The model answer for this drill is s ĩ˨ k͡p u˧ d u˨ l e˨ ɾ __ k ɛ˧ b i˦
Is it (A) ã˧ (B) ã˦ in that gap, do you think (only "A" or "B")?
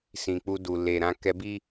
A